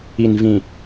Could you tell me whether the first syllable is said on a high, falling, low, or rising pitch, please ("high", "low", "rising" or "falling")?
low